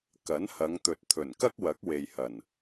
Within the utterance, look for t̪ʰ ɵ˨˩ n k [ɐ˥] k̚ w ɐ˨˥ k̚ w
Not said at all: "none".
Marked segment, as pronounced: ɐ˥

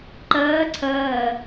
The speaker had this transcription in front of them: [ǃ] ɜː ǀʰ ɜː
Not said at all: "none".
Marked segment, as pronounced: ǃ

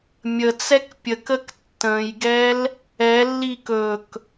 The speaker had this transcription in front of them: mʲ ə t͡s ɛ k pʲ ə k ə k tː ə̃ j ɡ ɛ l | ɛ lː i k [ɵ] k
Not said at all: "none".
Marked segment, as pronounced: ɵ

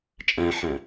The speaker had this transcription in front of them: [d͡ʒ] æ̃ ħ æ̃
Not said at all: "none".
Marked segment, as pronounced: t͡ʃʼ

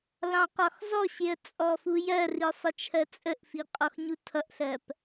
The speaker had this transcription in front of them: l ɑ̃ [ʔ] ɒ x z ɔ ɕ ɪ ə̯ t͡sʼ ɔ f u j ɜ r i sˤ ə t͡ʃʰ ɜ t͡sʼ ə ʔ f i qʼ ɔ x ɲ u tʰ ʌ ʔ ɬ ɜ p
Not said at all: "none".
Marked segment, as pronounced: q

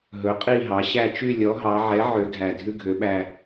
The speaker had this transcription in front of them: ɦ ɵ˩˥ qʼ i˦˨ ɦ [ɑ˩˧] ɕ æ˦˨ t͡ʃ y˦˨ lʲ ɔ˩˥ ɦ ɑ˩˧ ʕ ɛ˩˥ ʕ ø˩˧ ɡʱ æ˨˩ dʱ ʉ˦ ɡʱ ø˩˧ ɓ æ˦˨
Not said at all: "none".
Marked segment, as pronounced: ɑ˩˧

